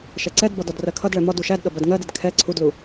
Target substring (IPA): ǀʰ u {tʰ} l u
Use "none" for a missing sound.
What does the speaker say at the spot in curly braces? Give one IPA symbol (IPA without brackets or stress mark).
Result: d